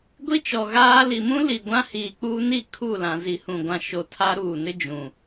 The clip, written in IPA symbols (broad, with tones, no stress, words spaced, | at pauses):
ɡʷi˦t͡ʃɔ˨ ɣaː˦ li˨mũ˦ li˨ ɡʷã˦hiː˨k͡puː˦ni˦˨ kʰu˦˨lã˨ zi˨hũ˨ ɡʷã˨ ʃo˨ tʰa˦ɾuː˨nɪ˦ d͡ʒũ˨